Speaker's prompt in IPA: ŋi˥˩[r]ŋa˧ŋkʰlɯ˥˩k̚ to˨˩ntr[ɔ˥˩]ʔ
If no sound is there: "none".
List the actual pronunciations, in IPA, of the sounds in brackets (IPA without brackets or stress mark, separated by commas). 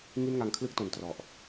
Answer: n, ɔ˨˩